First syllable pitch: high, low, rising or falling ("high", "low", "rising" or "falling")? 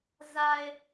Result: low